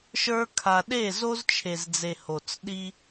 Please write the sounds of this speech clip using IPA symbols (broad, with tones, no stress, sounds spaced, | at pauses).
ʃ ə˞˦ kʰ a˧ ɗ e˦˨ z o˦ z t͡ʃʰ e˨ z d͡z e˨ h o˨ t͡s ɗ i˧